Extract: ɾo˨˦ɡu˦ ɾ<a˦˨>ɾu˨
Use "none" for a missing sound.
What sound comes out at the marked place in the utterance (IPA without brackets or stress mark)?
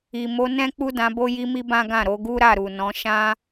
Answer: a˦˨